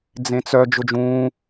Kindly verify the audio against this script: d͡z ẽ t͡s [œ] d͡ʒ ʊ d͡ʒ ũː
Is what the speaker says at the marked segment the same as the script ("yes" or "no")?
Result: yes